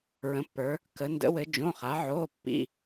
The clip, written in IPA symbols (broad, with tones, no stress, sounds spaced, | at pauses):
ɹ ə̃˩˧ pː ə˞˩˧ | k ə˩˧ n d ə̰˩˧ w ɘ˩˧ d͡ʒ õ˩˧˩ χ a˩˧ ʕ oː˩˧˩ pː ḭ˩˧˩